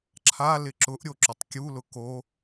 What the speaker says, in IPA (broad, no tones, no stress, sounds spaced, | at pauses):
ǁʰ a l ɪ ǁ ʊ ʔ ɾʲ o ǁ ʊ tˤ kʲ u l ʊ k o